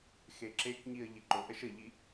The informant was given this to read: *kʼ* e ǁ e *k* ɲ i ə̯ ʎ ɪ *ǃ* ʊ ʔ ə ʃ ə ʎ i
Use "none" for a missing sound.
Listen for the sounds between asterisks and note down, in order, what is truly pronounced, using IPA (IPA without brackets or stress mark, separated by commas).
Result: x, k, ǃ